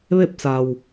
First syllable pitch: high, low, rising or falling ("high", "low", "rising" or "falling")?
falling